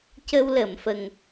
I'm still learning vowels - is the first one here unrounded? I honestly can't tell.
yes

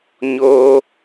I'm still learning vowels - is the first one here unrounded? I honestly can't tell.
no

